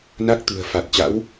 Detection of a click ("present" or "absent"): absent